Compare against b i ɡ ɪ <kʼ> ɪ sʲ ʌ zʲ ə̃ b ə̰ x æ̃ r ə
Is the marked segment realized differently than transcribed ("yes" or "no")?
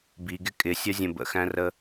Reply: no